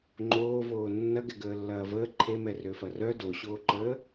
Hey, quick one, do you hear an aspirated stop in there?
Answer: yes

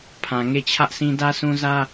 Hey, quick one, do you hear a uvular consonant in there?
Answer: no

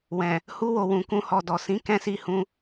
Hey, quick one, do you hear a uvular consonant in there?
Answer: no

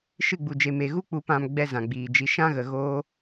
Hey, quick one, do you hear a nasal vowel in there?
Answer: yes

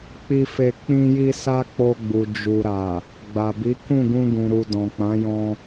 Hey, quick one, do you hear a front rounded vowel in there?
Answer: no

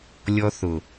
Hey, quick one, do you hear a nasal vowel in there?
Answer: no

